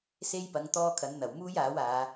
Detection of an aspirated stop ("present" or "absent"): present